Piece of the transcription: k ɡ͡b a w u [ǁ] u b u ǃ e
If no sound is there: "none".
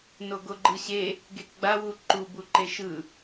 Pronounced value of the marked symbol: ǃ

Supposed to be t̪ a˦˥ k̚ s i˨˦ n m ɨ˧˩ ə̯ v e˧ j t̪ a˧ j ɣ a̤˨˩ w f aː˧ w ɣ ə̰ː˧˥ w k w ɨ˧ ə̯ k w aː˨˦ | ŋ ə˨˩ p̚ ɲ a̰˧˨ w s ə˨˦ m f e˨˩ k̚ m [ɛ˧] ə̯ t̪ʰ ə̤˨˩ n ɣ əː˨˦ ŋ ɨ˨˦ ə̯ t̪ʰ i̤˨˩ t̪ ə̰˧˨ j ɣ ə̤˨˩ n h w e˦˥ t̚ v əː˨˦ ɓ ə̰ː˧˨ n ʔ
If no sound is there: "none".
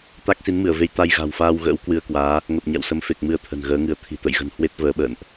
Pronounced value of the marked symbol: ɨ˧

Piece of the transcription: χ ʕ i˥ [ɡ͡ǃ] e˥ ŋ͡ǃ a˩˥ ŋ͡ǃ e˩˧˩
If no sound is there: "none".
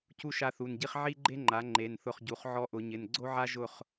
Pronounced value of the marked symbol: ɡ͡ǃ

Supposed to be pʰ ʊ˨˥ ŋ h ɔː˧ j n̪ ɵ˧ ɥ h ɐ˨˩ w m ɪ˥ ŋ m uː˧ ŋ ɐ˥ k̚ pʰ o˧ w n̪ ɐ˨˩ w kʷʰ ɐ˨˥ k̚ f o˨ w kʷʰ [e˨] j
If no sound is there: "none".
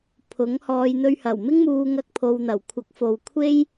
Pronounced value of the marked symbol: e˥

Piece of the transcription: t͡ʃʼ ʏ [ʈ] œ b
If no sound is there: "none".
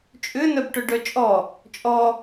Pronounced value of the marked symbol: n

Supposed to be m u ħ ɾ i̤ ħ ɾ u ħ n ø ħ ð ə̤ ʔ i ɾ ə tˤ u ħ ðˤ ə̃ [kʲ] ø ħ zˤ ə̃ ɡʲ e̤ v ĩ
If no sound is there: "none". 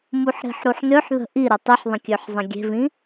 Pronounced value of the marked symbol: kʲ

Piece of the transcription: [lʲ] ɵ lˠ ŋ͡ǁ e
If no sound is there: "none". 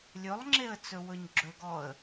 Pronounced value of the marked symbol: lʲ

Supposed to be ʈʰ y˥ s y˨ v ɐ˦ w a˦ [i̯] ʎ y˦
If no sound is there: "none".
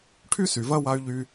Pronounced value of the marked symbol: y̯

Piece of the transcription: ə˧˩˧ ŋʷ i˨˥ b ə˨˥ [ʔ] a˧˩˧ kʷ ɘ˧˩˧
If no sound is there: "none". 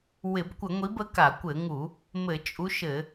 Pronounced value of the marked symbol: k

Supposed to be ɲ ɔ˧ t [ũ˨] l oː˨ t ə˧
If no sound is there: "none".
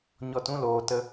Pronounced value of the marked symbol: ũ˦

